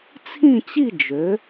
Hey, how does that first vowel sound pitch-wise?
falling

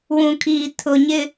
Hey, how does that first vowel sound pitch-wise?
low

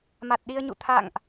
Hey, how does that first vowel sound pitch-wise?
low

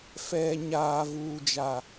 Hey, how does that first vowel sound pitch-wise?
low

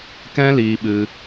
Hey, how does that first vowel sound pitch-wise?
high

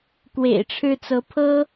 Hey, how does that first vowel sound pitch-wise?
low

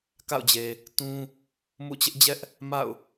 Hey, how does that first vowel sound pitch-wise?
falling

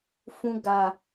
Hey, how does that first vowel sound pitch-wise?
high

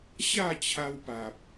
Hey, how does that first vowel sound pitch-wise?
falling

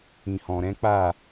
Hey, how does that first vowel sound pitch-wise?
low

